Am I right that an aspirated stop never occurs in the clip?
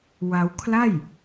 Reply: no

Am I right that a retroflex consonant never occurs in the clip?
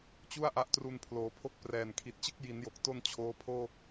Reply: yes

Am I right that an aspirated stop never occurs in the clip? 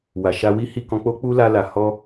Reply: yes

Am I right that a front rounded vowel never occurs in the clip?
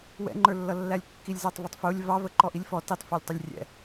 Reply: yes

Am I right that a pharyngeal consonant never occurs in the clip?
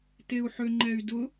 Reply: no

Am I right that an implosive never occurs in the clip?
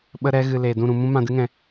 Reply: no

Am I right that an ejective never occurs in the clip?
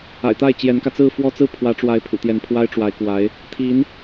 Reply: yes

